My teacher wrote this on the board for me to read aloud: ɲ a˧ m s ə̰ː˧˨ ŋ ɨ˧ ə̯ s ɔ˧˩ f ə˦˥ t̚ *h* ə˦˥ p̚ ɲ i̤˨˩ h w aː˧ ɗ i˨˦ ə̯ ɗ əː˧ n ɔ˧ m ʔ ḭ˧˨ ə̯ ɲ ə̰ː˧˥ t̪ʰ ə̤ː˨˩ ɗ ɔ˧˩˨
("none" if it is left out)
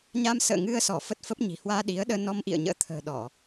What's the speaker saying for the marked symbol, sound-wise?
f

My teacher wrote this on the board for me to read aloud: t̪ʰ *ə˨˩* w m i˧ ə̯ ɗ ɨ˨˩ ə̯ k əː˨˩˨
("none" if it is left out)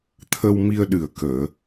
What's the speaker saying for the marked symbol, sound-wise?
ə˧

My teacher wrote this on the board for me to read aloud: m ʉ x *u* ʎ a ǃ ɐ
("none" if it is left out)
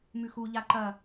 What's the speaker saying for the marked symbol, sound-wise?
u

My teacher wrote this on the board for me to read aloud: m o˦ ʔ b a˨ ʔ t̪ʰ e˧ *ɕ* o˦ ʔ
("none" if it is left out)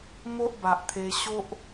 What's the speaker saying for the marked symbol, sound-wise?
ɕ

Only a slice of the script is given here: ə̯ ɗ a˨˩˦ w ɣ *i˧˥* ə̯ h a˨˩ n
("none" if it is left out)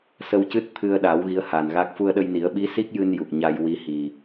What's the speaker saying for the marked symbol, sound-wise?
i˧˥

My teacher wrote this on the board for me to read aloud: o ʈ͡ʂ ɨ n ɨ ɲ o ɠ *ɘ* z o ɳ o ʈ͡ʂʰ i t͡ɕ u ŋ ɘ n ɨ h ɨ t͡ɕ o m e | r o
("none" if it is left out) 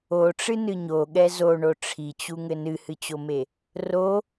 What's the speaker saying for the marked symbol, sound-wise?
ɛ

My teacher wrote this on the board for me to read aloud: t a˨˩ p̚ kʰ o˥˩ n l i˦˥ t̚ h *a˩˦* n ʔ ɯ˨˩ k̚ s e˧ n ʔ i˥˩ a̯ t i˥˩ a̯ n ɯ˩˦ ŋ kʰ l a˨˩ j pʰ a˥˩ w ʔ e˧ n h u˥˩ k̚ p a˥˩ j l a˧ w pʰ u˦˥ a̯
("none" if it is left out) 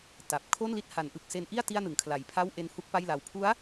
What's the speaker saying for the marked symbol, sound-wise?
a˩˦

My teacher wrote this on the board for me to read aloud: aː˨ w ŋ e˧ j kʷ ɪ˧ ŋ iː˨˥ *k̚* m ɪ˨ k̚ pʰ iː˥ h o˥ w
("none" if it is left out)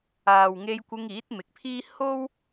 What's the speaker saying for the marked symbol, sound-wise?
t̚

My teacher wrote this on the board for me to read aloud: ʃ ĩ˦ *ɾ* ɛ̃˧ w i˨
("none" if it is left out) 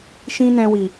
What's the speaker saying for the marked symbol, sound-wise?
n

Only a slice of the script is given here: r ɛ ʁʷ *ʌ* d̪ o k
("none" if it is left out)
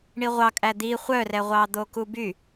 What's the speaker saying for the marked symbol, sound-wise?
ɑ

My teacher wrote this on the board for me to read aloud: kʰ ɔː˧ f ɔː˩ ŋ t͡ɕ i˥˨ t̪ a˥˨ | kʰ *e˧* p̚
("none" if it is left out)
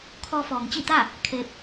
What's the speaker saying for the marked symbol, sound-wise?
e˧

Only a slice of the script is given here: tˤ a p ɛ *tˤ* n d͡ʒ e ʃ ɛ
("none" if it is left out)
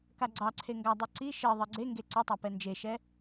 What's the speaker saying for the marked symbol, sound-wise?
none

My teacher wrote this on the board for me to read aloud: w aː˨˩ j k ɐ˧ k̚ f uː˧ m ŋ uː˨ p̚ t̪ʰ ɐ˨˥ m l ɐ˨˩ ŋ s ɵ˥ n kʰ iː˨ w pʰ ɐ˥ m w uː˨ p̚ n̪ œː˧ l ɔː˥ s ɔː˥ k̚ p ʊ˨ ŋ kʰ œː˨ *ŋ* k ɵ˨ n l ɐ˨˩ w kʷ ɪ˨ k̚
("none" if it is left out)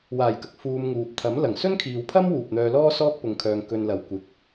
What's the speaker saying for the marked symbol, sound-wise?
ŋ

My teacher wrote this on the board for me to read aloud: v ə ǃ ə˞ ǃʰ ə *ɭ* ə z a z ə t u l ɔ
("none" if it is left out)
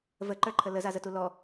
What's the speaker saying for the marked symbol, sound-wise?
l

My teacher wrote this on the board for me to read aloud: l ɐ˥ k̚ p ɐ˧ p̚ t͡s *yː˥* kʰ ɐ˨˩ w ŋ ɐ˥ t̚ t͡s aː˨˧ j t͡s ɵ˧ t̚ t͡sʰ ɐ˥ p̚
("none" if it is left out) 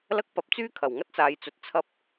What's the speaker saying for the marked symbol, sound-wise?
yː˥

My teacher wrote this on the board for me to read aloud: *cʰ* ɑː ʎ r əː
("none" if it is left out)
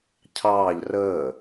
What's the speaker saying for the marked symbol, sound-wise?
cʰ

